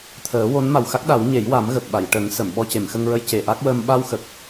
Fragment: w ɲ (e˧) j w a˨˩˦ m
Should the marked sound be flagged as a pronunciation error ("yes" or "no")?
yes